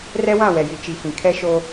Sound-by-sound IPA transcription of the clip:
r ɛ˦ w ã˦˨ w ɛ˨ j i˨ t͡ʃ i˨˦ f ĩ˨ kʰ ɛ˦ ʃ o˦

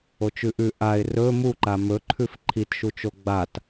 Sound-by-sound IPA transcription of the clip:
o t͡ʃ ʉ ʔ ʉ ʔ a ɪ̯ r ɵ m u ǃ a m ɵ ǃʰ ʉ f ǃʰ i t ʃ u t͡ʃ o ɡ͡b a t

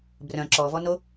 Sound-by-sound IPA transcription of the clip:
b r œ̃ ǁ ɔ v ɔ n o

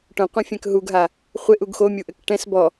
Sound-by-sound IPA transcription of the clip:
ʈ õ qʷ ɐ̃ fʲ ɛ̃ k ɦ u ɡ ɦ a | χʷ e ʔ u ɡ x o mʲ u ʔ ɘ k ʈ ɛ̃ s b ɔ

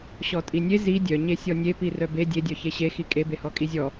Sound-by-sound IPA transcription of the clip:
ɕ ɔ tʼ i nʲ e z i dʲ œ ɲ e sʲ ɔ nʲ e p i r œ b e dʲ e dʲ œ ç e ɕ e x i kʼ e b e h ɔ kʼ i zʲ ɔ

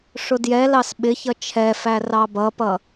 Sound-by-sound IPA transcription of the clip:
ʂ ʊ d j ɛ l ɑ s ɓ ɪ ç ʌ t͡ʃʰ ɛ f æ r ɑ b ʌ p ʌ

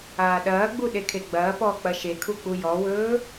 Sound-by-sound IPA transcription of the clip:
aː ɗ ɐː ɡ͡b u ɗ e kʰ e ɡ͡b ɐː p ɔː k͡p ɐ ʃ e kʰ u k͡p u j ɔ w ɵː

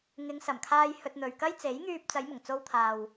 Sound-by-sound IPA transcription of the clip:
ŋ ɪ˨˧ ŋ s ɐ˨˩ m kʰ aː˧ j h ɵ˧ t̚ n̪ ɵ˨ ɥ k ɐ˥ j t͡s e˨˥ j ŋ yː˧ p̚ t͡s ɐ˨˧ j m ʊ˨˩ ŋ t͡s o˧ w t̪ʰ aː˨ w

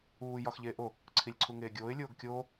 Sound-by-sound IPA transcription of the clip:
uː j ɒ x ʎ eː ʔ o | ǀʰ i lʲ ǀʰ u ŋ eː ɡʲ oː ɪ̯ lʲ oː ɡ kʲ oː

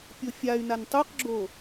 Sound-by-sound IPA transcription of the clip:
pʲ o fʲ a y̯ n a n tˤ u q ɡ͡ǁ o

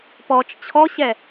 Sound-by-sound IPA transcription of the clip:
p ɔ t͡ʃ t͡ɕʰ ɔ ɕ ɛ

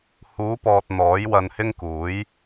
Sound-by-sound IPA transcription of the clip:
h uː˨˧ p ɔː˨ t̚ n̪ ɔː˨˥ j w ɐ˧ n h ɪ˥ ŋ k uː˨˥ j

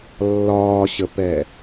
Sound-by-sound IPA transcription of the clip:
lː ɒː ɕ ə p ɛ

